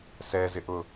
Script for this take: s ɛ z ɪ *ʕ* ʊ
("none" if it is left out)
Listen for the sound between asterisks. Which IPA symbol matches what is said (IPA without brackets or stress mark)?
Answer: ʔ